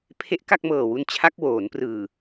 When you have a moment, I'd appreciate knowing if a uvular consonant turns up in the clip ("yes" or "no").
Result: no